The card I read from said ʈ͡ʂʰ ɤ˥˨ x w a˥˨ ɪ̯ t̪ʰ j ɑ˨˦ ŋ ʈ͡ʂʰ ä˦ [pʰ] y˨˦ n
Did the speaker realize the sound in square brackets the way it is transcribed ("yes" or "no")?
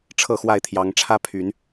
yes